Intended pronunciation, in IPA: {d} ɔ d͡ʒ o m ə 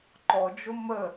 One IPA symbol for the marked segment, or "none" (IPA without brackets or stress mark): ǃ